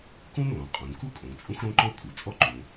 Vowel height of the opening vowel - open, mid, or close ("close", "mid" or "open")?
close